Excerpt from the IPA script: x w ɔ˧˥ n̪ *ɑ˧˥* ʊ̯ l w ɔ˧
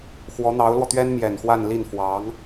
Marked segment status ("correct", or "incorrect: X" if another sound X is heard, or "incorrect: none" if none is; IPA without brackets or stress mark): correct